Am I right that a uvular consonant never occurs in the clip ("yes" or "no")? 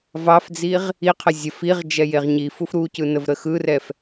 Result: no